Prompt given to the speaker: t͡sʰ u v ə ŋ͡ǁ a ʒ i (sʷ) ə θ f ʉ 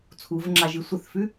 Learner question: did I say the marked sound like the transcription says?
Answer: yes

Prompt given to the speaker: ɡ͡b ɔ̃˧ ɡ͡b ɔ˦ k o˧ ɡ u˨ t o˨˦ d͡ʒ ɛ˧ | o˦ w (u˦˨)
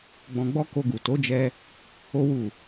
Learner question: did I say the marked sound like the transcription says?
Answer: yes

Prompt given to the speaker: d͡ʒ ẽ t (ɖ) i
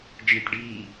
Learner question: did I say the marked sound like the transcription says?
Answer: yes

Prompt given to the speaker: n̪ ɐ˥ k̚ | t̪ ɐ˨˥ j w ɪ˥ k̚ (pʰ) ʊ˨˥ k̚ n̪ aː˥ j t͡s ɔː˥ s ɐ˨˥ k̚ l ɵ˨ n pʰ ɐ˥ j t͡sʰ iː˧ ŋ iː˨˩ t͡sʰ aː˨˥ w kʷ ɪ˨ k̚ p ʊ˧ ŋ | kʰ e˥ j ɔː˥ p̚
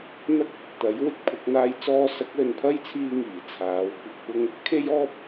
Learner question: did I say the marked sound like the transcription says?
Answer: yes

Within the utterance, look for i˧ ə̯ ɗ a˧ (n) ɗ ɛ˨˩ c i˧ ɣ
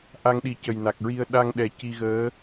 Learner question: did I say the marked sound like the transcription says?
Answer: no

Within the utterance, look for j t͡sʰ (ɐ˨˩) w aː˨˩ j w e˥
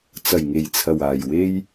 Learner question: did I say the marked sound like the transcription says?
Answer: yes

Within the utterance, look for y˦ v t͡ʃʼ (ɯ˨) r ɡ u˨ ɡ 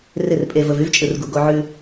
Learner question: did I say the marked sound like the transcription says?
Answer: yes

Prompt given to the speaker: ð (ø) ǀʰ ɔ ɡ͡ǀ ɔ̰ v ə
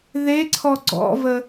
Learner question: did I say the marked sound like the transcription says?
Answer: no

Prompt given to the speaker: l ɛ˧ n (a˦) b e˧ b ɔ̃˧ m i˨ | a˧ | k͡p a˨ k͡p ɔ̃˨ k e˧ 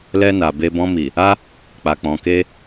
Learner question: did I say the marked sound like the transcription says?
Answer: no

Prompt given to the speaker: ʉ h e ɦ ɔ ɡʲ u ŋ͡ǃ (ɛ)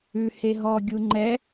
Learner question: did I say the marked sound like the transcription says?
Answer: yes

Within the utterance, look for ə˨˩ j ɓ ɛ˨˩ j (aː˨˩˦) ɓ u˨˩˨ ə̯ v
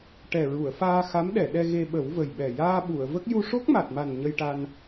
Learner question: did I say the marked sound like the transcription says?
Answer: no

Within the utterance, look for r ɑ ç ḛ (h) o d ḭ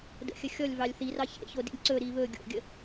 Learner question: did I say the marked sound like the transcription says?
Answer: no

